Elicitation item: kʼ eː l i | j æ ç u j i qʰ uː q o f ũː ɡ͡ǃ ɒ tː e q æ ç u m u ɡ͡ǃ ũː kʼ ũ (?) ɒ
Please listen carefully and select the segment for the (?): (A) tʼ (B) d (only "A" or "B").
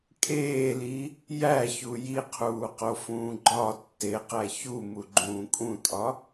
A